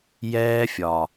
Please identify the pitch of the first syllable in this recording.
high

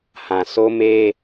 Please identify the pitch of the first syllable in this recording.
low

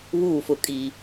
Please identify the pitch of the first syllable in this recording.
falling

